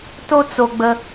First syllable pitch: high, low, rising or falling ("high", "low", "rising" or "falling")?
high